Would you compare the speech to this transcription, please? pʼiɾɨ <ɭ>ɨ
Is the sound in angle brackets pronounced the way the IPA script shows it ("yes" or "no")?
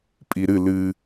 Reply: no